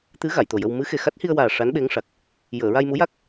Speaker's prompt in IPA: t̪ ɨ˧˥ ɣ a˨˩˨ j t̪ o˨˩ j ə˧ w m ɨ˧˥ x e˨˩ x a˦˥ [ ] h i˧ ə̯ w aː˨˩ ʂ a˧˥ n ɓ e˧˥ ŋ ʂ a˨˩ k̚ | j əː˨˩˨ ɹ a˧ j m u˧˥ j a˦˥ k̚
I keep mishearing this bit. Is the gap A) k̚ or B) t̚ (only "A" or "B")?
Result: B